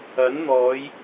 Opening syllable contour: rising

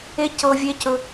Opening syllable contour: high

